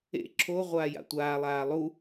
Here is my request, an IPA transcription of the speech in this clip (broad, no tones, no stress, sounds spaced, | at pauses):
ḛ ǁʰ o ʁʷ aː j a̰ tʷ aː lˠ aː lˠ u